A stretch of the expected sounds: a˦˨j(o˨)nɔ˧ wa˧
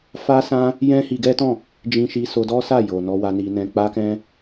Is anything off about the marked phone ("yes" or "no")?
no